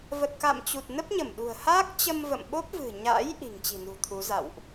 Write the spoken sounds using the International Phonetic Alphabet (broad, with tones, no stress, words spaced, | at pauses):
və˨˩t̚ka̰˧˨mt͡ɕu˨˩t̚ nə˦˥p̚ɲə˧˩mɗṳ˨˩ə̯ haː˦˥k̚t͡ɕə˧mvə̰˧˨mɓo˦˥p̚ vɨ̤˨˩ɲa̰˧˥j ʔi̤˨˩ŋt͡ɕi̤˨˩nṳ˨˩ t̪ʰu˨˦ za̰˧˨wʔ